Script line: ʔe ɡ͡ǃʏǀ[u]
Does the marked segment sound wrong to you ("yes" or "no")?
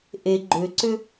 yes